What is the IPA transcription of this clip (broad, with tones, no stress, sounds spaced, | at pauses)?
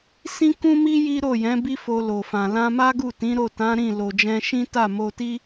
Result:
s ĩ˦ k ũ˦ m i˦ j i˦ ɾ o˦˨ j ɛ̃˨˦ b i˦ f o˧ l o˨ f ã˨ l ã˧ m a˦ ɡ u˦˨ t ĩ˨˦ ɾ o˦˨ t ã˨˦ ɾ ĩ˦˨ l o˨ d͡ʒ ɛ̃˧ ʃ ĩ˦ t a˦˨ m o˧ t i˦